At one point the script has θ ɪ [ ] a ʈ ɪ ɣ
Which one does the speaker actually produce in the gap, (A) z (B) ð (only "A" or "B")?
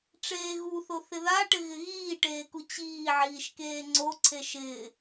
B